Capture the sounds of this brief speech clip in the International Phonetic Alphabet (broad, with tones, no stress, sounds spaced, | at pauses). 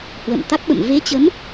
h w ə̰˧˨ m t̪ a˦˥ k̚ ɓ ə̰˧˨ m v e˨˦ t͡ɕ ə˨˦ m